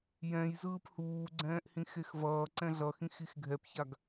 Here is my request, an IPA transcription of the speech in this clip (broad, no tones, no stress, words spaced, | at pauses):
jɛ̃j zɯːphuːɡ͡ǀɛ̃ːʔhĩ xexvʌː ǀɛ̃ɮʌxĩx ixɡʱɛpçaɡ